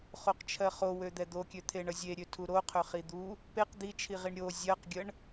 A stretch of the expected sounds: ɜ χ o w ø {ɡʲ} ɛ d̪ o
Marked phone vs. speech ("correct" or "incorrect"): incorrect